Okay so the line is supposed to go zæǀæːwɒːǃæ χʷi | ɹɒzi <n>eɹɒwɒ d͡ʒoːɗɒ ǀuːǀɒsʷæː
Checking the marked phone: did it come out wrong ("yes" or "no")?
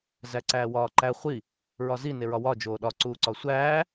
no